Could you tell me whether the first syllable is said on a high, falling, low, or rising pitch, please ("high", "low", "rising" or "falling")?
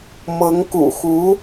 rising